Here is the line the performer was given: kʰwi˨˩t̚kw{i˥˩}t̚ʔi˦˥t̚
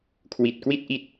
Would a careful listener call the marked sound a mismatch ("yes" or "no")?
no